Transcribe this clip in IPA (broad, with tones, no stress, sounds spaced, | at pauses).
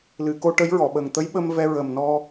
l ɨ˨˩˨ k o˧ ʈ ə˧˥ j ɹ ɔ˨˩˨ ɓ ə˨˩ ŋ t̪ ə˧˥ j ɓ ə˧ m v ɛ˧ ɹ ə˨˩ m n ɔ˧